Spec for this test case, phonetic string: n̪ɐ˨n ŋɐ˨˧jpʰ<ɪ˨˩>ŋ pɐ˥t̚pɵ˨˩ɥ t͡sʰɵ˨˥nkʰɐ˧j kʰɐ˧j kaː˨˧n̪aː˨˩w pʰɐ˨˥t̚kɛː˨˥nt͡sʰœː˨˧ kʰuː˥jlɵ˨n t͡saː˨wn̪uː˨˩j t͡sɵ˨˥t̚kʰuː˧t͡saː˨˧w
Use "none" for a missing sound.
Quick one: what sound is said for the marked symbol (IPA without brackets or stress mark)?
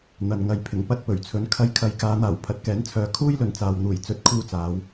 ɪ˨˩